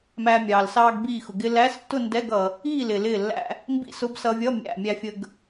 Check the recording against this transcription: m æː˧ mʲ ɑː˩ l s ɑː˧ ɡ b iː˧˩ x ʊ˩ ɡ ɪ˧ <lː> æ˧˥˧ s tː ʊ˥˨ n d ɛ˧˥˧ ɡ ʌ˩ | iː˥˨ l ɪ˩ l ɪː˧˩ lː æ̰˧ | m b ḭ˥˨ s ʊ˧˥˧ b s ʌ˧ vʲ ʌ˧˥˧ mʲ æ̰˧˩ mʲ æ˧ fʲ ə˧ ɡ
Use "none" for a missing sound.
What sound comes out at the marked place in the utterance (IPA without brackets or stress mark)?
l